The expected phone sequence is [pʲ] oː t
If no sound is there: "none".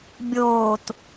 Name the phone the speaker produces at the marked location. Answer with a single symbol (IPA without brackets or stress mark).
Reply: bʲ